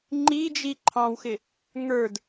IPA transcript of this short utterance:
ŋ͡ǃ i d͡ʒ i ǃʰ ɑ̃ w x ɪ | ŋ ə˞ d

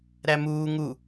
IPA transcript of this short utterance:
ɾ æ m uː ŋ u

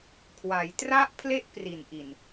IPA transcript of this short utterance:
kʰ w a˩˦ j t r a˦˥ ʔ pʰ l e˦˥ ʔ p r i˨˩ n ʔ i˨˩ n

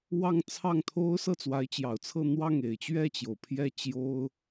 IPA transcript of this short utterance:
w ɑ˥˧ ŋ t͡sʰ ɑ˥˩ ŋ t̪ʰ o˥ ʊ̯ s ɤ˥˩ t͡s w a˧˥ ɪ̯ t͡ɕ j ɑ˨˩ ʊ̯ t͡sʰ ɤ˥˧ n̪ w ɑ˥˩ ŋ e˨˩ ɪ̯ t͡ɕ ɥ ɛ˥˩ t͡ɕ j o˩ ʊ̯ pʰ j ɛ˥˩ t͡ɕ j o˥ ʊ̯

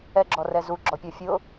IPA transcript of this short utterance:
ɛ ɡ͡ǁ ɔ r ɛ z u ɡ͡ǁ ɔ pʲ ɔ fʲ ʊ

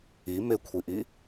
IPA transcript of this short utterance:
i m ɪ kʷʰ i ʔ i

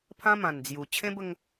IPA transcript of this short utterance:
pʰ ã˦ m ã˨˩ n d͡z j u˨˩ t͡ɕʰ ẽ˦ b ə˦ ŋ

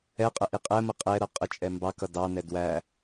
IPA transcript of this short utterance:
ɛ qʼ ə ʔ i qʼ ɛ m ə qʼ ɛ ɾ ʌ qʼ ə t͡ʃʼ ɛ m b ɑ k ʌ d ɑ n ɛ d w æ

